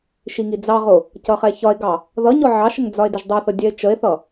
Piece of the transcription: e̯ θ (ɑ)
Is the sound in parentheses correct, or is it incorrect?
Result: incorrect